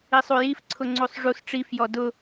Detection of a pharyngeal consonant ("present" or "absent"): absent